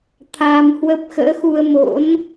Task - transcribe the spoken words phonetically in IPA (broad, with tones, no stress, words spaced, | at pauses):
t̪ʰaː˧mhwə˦˥p̚ xə̰ː˧˥xu˧ə̯mo̰˧˥n